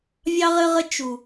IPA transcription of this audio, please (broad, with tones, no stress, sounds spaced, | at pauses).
vʲ ɑ˥ ʁ ɘ˥ ʁ ə˥ t͡ʃ u˨˩